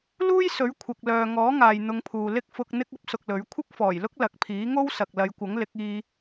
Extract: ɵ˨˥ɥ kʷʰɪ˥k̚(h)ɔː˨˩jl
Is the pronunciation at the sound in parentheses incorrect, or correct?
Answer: incorrect: f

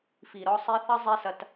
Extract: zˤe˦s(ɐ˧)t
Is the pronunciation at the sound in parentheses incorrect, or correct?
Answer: correct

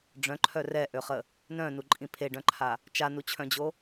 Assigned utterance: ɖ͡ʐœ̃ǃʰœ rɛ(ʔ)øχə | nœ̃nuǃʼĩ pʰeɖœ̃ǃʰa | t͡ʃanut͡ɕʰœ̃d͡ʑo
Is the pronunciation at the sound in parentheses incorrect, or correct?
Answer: correct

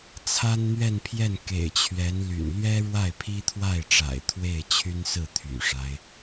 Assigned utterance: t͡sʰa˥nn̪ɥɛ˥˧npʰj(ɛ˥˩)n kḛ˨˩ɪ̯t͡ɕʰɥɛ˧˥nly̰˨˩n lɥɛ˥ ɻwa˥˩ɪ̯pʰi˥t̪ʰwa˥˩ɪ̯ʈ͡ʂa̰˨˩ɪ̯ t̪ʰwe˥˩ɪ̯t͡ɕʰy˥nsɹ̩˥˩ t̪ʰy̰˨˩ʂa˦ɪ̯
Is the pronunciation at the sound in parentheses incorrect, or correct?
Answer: correct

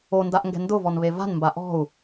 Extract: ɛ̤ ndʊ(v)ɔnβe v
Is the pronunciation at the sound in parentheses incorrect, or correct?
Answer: correct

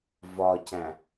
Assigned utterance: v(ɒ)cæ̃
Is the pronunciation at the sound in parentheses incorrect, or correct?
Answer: correct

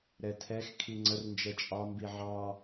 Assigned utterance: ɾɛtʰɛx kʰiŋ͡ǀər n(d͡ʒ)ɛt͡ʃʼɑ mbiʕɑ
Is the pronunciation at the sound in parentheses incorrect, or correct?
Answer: correct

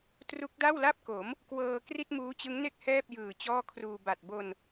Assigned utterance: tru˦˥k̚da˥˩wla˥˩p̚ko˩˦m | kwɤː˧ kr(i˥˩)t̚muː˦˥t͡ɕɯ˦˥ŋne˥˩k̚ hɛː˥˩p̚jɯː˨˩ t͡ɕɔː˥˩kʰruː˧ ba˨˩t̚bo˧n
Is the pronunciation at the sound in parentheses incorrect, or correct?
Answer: correct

